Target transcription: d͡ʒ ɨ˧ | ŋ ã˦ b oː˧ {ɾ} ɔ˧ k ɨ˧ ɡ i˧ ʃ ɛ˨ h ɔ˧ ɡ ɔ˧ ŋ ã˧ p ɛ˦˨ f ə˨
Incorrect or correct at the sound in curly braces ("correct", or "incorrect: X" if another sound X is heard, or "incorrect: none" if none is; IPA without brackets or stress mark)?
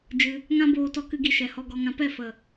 incorrect: t